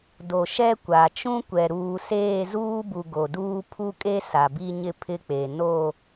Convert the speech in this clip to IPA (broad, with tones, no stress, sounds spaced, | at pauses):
d o˨ ʃ ɛ˦ kʷ a˨ t͡ʃ ũ˦ kʷ ɛ˨ ɾ uː˨ s eː˦˨ z uː˦ b u˨ ɡ o˨ d uː˦ pʰ u˦ kʼ e˦ s a˨ b i˦ ɲ ɪ˦ pʰ ɪ˦ k͡p e˨ n o˦˨